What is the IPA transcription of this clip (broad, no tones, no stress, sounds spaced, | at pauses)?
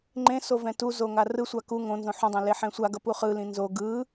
ŋ͡ǃ ẽ s o v ɛ̃ t u z o ŋ a r ɯ sʷ a k u ŋ õ n z õ ħ ũ dˤ ẽ l e ħ ɛ̃ sʷ a ɡ ʌ p u χ ɯ l ĩ n z o ɡ ɯ